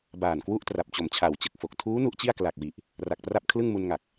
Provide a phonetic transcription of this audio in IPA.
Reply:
baː˨˩nkwu˥˩ʔtra˨˩p̚t͡ɕo˨˩m t͡ɕʰa˨˩wt͡ɕɯ˨˩k̚fo˨˩k̚ tʰuː˦˥ nu˦˥ʔt͡ɕi˥˩a̯ kla˨˩k̚wi˨˩ʔ | ra˨˩k̚pra˥˩p̚kʰlɯ˥˩ŋ mu˧nŋa˨˩k̚

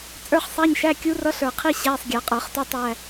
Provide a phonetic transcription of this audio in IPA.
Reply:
t͡sʼə˞˧˥˧χsˤæ˧˥˧ɲʃæ˧˥˧ kʲu˧˥rʌ˧˥ɬə˞˨˩qʰi˧˥˧ ɕæ˧˥˧sˤɡʲæ˨˩˦qʼə˞˨˩˦χtu˧˥˧tˤ æ˧˥˧

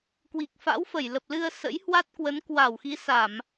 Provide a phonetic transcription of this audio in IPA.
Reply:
kwi˨˩k̚fa̰˧˥wfə˧˩jlə˨˩p̚ lɨ˧ə̯ sə̰˧˥jhwa˦˥t̚kwə˨˦n kwa˧˩w xi˨˦sa˧˩˨m

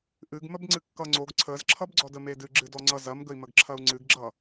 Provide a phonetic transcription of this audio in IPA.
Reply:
ʔɨɡməbŋ͡ǀɨ kːʌŋ͡ǀoɡ ǀʰəzǁʰʌbɡ͡ǀɔdə medɨɡ͡ǁɨ dɔŋ͡ǀʌ zɐmɡəi̯məɡǁʰɐu̯ ŋ͡ǀɨɡɡ͡ǁʌ

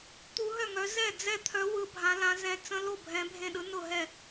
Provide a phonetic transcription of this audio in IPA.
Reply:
t̪u˧˥ɦœ˥˩ŋœ˧˥ zɛ˥˩ d͡zɛ˥˩t̪ʰœ˧˥ wɯ˧˥bʱã˧˥lã˧˥ zɛ̃˧˥ t͡sə̃˧˥lo˥˩ bʱɛ̃˧˥bʱẽ˥˩ɗɯ˧˥ nʊ˥˩ɦɛ˥˩

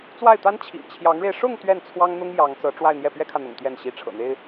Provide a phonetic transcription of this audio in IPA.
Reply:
t͡swa˥˩ɪ̯t̪a˥n t͡ɕʰḭ˨˩ŋt͡ɕʰjɑ˧˥ŋɻe˧ɪ̯ ʂʊ˥˧ŋ t̪ɥɛ˥˩nt͡sʰwɑ˥ŋn̪ʊ˥ŋ jɑ˧˥ŋt͡sɤ˧˥ ʈ͡ʂwa˥˧ɪ̯n̪jɛ˥˩ pɥɛ˥kʰä˨n̪ʊ̰˨˩ŋ t̪jɛ˥˩n ɕi˧˥ ʈ͡ʂʰɤ̰˨˩n̪e˥ɪ̯

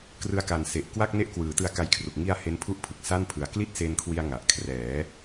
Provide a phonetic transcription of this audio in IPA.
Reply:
krɯ˧a̯ka˨˩nse˨˩ʔ kwa˥˩k̚ne˥˩ʔkwɯː˩˦ tɯ˧a̯ka˧jkʰru˨˩k̚ ŋi˧a̯ he˦˥npʰu˥˩ʔpʰɯ˨˩k̚ sa˥˩npʰɯ˨˩a̯ kli˥˩t̚se˧nkʰwi˧a̯ ŋa˨˩ʔ kʰrɛː˩˦

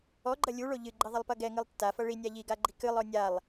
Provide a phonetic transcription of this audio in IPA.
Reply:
ɔɡ͡ǃɐ lʲuɭo ʎɨɡ͡ǃiðˤɐlˠpɐ ɡɛŋɨlˠ tːafɐ ɭinʲa ʎiɡaɡ͡ǃi kɨlˠɔ nʲalˠ

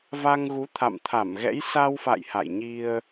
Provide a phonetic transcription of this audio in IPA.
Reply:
va˧ŋɣu˨˦ t̪ʰa̰˧˨mt̪ʰa˧˩mɣɛ̰˧˥j sa˧wfa̰˧˨j ha̰˧˨jɲi˧ə̯

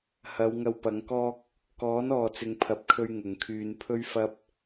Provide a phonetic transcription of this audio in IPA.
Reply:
hɐ˨˧wŋɐ˧wpɐ˨˧ŋkɔː˥k̚ | kɔː˨˥nɔː˨t͡sɪ˨ŋ pʰɐ˨p̚kʰɵ˧ɥ ŋʊ˨ŋ kʰyː˨n pʰɵ˥ɥfɐ˥p̚

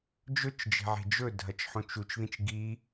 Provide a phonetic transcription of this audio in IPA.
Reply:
d͡ʒɵt͡ʃd͡ʒe̤ʕe̤ d͡ʒɵdʱɐt͡ʃħõt͡ʃ ut͡ʃðĩt͡ʃ ɡi

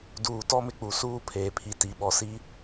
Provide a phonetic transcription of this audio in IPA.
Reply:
duː˨tɔ˦mɪ˦k͡pu˨ suː˦pʰeː˨pʰi˨ ti˨ ɓɔ˨si˦

